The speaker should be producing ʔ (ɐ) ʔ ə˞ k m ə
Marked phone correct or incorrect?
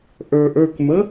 incorrect